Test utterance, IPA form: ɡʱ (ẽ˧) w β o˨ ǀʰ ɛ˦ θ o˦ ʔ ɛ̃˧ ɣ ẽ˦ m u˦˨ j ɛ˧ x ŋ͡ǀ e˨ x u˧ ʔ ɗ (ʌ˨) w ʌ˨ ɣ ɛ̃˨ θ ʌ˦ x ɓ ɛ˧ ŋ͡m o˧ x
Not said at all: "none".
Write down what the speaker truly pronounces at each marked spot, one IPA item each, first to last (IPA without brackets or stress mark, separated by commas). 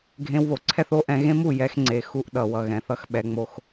ẽ˧, ʌ˨